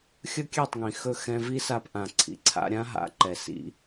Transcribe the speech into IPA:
xʲ ɵ˦ kʲ ɛ˦˨ tˤ ŋ ĩ˨ x ɵ˦˨ x ɛ̃˧ v i˦ s a˧ p ʔ ã˨ ǀʰ ḭ˨ ǀʰ a̰˧ ɾʲ ã˦ ɦ a̰˨˦ ǃ ɛ˨ s ḭ˧

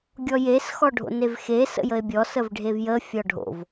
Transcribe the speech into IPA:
ɡʲ ɔ j e s x ɔ ɖʱ o̰ n e v x e s ə̰ j ə e̯ bʲ ɔ s ə v ɖʱ e v j ə fʲ ɔ ɖʱ o̰ v

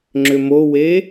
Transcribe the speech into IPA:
ŋ͡ǁ ʏ m o w e

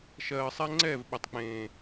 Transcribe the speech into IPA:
ʃ ɜː˨ sˤ ɛ˧ ŋ͡ǀ ɛː˦˨ v ɓ ɵ˨ tˤ k͡p ẽː˨

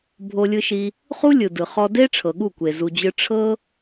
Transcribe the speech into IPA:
bʱ o˧ lʲ ɯ˧ ʃ i˧ | χ u˦ lʲ ɯ˨ d ɯ˨ χ ɔ˧ d e˦ ʈ͡ʂʰ ɤ˨ ɠ u˦˨ kʷ e˨ z u˧ d͡ʑ ɯ˦ ʈ͡ʂʰ ɤ˦

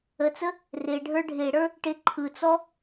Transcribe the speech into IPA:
ə t͡s ə | r e ɖʱ ə˞ ɖʱ e ɽ ə˞ | ʈ e ǃʰ ɯ t͡s ɔ

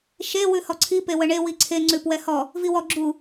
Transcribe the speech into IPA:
ʃ e w ʉ h ɔ ǀʰ i p e w ə ɳ e w i ǀʰ e ŋ͡ǀ ʉ p w ɛ h ɔ | v i w ɔ ɡ͡ǁ u

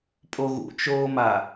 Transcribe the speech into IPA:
pʼ o ɣ ṵ t͡ʃ oː m a

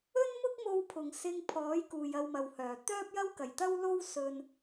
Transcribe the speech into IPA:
ɵ˥ n m ʊ˥ k̚ m o˧ w pʰ ʊ˨˩ ŋ s ɪ˧ ŋ pʰ ɔː˨˥ j k uː˨ j ɐ˧ w m ɐ˨ w h œː˨˩ t̪ œː˥ p̚ j ɐ˥ w k ɐ˨˩ j t̪ ɐ˥ w l o˥ w s ɵ˨ n

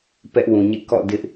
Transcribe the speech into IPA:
p ɛ˦ ʔ w ũ˨ ɲ ḛ˦˨ k ɔ̰˦˨ d ɪ˦ ʔ

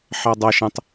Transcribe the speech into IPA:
ħ ɑ dˤ ɑ ʃ ə̃ tˤ

